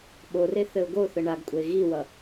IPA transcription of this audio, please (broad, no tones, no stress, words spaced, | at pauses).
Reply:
ɓore θɘʊ̯ɡoθə ɳaɡkʷʼəɪ̯ ɣiwʌ